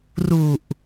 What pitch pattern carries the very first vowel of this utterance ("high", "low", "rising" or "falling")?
low